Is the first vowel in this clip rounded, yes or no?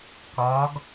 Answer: yes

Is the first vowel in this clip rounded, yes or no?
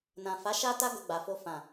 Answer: no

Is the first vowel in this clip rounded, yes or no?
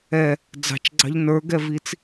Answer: no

